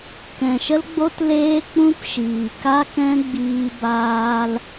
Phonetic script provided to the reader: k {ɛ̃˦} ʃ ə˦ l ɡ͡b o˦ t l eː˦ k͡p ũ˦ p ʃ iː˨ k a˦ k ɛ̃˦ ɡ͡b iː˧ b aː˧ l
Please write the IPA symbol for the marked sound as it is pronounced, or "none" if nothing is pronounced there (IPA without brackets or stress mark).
ɛ̃˨